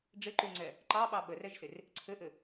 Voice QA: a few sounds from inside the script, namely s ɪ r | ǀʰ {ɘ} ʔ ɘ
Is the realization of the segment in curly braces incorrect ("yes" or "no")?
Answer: no